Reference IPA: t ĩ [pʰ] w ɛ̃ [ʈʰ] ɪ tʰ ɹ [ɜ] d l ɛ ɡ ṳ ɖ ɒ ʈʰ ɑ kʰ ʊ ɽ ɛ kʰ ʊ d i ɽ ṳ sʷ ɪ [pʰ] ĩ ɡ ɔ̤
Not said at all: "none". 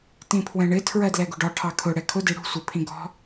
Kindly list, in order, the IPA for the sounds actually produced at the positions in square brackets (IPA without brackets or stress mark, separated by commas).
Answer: pʰ, ɳ, ɜ, pʰ